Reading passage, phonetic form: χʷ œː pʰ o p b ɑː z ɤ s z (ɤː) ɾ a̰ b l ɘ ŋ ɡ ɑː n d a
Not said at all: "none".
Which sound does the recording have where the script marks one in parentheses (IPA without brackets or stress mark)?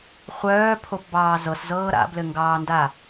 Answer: ɤː